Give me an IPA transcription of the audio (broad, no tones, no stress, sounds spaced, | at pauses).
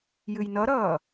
j ɨ j n ʌ ɾ ʌː